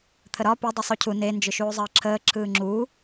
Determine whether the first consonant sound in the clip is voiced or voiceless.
voiceless